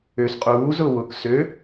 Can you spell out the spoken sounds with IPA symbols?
ø s qʼ uː z ʊː w ʊː k s ø

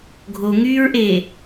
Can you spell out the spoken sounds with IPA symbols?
ɡʱ o ŋ yː ɹ ʔ eː

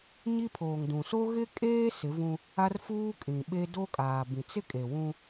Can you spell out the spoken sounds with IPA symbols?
ɲ i˦ pʰ oː˨ ŋ d ũ˨ s o˦ ɣ ɪ˦ kʼ eː˦ s ɪ˨˦ v ũ˦ | a˦ r f uː˦ kʼ ĩ˨ ɓ e˦ d o˦ kʼ aː˨ b ĩ˨ t͡s ɪ˦ kʼ e˨ w ũ˦

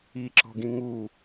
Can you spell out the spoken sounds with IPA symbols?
i ǁ ɔ̤ ɡ ĩ ŋ u

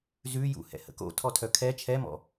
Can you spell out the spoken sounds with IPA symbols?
z ʉ j ṵ h ɛ̰ h ə̰ k o̰ tʰ ɔ tʰ œ kʰ ɛ t͡ʃʰ ɛ m ɔ̰

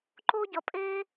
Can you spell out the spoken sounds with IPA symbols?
ǃ o˥ ɟ ʌ˧ pʼ e˥

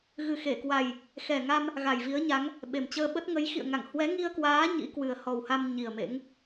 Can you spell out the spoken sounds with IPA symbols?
ɣ ɨ˨˩ x e˧˩ k w a˨˩ j | x ɛ˨˩ ŋ a˧ m | ɣ a˨˩ j v i˨˦ ə̯ ɲ a˨˦ ŋ | ɓ e˨˩ m t͡ɕ əː˧ ɓ ə˦˥ t̚ ŋ ə˨˦ j x ḭ˧˨ ə̯ ŋ a˧˩ ŋ h w ɛ˨˦ ŋ i˧ ə̯ k w aː˨˦ ɲ ḭ˧˥ k w ɨ˨˩ ə̯ h ɔ˨˩ w h a˧ m ɲ i˨˩ ə̯ m ḛ˧˥ ŋ

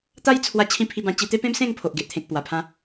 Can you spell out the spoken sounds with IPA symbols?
t̪ a˦ j t͡sʰ w a˧ t͡ɕʰ ĩ˧ pʰ i˧ b ã˧ t͡ɕ i˧ t̪ e˦ p ẽ˦ m s ẽ˥˧ ŋ pʰ o˨ ʔ ɡ e˨ ʔ t̪ʰ ẽ˨ k̚ p w a˨˩ pʰ ã˧

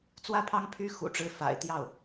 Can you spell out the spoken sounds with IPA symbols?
t͡s w ä˥˩ pʰ ɑ˥ ŋ pʰ y˥ x ṵ˨˩ ʈ͡ʂ ɻ̩˧˥ f a̰˨˩ ɪ̯ t̪ j ɑ˥˩ ʊ̯

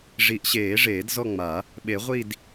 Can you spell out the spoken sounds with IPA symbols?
ʐ i˨˩˦ ʔ ɕ eː˨˩˦ ʐ eː˨˩˦ d z ɔ˦˨ ŋ͡m a˨˩˦ | ɓ e˨˩˦ ʁʷ i˦˨ d

